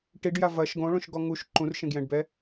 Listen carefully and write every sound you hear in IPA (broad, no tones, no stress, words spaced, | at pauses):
ʈiɖja vɐʃ ɡõɭõʃɡɔ ŋuʃ ǃũrʃẽɡjɛ̃ɖbɛ